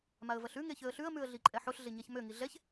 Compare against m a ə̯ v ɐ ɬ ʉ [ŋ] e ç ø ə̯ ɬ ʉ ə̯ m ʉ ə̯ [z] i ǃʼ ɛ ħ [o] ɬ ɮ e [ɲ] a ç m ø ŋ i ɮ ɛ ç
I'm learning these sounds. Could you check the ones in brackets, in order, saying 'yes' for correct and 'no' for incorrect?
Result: yes, no, yes, yes

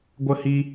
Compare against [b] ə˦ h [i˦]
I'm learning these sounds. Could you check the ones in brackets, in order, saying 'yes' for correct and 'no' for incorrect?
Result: no, yes

